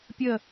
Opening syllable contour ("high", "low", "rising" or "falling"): falling